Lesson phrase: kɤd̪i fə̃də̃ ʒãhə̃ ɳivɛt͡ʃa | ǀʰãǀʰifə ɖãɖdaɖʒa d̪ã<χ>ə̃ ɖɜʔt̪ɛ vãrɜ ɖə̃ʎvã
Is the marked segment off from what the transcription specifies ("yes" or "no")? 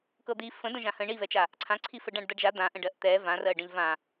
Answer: yes